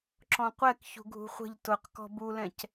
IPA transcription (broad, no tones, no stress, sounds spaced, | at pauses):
ǁ ɔ̃ qʷ ɛ k ç ṳ ɡʱ ṳ χʷ ə̤ ʎ t ʊ q k ɔ̤ b u l ɛ̃ c